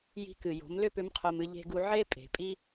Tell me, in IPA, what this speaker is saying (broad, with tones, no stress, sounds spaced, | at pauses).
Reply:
j i̤˧ k ɨ˩ j o̤˩˧ m l ʏ˥ p ʏ˧˥ m qʰ o˧ m ɨ˧ ʎ e̤˧ ɡ u˧ ʕ e˥ pʼ e̤˩˧ pʼ i˥